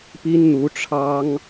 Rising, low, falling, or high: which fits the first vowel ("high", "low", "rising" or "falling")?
high